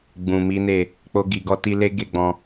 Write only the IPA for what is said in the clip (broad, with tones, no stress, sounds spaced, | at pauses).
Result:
ɡ͡b ũ˨ m i˨˦ n e˦˨ | k͡p o˧ ɡ i˨ ɡ ɔ˧ t i˧ l e˦ ɡ e˦˨ ɡ͡b ɔ̃˧